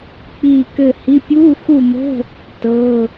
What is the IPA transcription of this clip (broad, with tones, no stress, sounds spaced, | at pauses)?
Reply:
k͡p iː˦˨ k ɘ˦˨ h i˧˥˧ pʲ uː˧˥˧ x u˦˨ m ə̤˧˥˧ | t ɤ˧˥˧